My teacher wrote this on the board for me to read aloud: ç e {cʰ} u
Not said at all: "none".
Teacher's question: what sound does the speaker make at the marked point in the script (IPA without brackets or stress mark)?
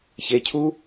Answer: cʰ